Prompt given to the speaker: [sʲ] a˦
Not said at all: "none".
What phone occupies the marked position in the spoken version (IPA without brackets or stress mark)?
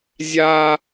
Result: zʲ